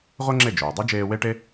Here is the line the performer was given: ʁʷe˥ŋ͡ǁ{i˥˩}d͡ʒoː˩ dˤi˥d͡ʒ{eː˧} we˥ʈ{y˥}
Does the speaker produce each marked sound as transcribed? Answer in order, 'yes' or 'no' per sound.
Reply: no, yes, no

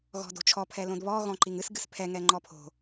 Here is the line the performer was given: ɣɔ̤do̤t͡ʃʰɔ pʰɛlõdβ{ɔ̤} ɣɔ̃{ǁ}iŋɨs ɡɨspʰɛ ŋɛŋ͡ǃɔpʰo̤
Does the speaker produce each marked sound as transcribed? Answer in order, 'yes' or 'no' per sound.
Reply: no, no

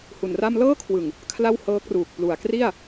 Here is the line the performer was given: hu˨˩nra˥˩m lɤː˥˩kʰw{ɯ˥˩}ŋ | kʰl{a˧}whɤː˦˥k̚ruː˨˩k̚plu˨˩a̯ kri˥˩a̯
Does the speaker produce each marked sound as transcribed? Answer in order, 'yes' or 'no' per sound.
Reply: no, no

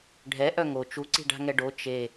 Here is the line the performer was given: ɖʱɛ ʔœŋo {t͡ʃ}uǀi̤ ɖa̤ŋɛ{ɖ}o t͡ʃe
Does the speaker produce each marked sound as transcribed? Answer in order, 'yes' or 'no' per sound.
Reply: yes, yes

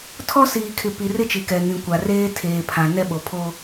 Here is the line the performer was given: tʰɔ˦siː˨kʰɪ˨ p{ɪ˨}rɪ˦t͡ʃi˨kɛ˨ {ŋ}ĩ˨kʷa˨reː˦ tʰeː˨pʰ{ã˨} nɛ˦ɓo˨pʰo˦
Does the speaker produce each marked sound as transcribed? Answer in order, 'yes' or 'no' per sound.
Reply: no, yes, yes

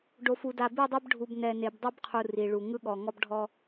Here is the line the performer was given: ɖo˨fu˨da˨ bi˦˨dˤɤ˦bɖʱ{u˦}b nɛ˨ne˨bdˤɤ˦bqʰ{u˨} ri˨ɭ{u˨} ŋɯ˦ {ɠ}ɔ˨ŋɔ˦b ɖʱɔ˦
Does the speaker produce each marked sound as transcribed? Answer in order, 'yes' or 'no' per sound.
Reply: no, yes, yes, yes

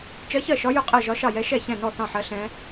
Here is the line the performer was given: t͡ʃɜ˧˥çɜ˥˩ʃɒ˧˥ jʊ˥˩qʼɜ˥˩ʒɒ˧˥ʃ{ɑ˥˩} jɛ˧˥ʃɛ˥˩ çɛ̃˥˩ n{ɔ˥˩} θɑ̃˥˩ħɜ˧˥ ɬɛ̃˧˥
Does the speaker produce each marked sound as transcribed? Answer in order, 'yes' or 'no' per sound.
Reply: yes, yes

